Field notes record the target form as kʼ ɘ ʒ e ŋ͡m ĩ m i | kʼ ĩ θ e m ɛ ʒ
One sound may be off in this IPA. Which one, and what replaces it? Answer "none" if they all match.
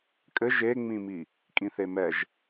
none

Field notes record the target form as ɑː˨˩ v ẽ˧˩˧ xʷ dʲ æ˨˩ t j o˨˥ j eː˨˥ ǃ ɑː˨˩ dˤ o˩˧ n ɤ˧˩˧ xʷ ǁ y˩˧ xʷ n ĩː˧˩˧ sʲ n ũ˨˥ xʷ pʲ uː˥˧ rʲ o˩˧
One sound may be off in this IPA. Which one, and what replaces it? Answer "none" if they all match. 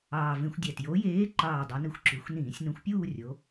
ɤ˧˩˧ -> ɯ˧˩˧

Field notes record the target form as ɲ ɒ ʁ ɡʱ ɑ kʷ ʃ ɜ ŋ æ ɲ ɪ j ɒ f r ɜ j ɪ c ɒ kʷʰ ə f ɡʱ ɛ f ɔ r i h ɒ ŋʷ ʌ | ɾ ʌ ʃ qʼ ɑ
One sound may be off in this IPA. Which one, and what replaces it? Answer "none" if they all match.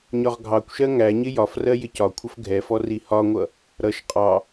none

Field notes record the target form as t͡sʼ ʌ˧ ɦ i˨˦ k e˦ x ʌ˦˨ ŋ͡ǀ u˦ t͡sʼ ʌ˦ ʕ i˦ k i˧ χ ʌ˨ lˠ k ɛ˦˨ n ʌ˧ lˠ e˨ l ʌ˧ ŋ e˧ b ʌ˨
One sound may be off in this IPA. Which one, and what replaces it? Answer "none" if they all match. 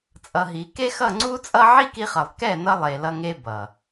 none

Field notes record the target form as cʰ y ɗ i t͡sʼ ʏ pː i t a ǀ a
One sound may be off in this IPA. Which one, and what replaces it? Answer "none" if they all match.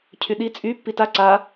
ʏ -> y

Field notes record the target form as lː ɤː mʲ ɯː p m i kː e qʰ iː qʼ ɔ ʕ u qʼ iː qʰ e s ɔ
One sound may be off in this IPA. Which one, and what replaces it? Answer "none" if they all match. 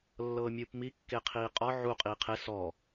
none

